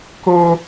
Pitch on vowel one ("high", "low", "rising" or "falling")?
high